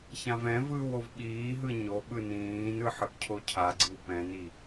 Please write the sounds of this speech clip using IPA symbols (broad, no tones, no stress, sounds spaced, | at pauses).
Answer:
ç ã v ɛ̃ v ɯː w o v ɓ iː ɦ ɯ ɲ o ɓ ɯ n ĩː n ɯ ħ ɯ ʔ cʰ o cʰ a ɡ͡ǀ ɯ w p ɛ̃ n i